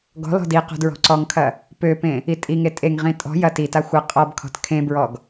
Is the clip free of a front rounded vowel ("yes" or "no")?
no